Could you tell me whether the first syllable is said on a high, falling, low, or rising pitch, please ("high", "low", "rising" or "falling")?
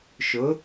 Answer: rising